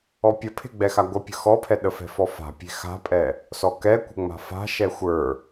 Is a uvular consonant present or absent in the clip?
absent